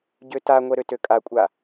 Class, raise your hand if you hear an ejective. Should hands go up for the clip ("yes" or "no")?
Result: yes